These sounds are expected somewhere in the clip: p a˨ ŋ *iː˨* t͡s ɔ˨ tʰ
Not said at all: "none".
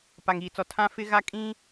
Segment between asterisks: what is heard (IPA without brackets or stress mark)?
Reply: iː˨